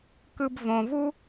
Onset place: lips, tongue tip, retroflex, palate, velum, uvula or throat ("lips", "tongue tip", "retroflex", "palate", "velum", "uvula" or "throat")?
velum